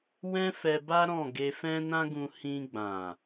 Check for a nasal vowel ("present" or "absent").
present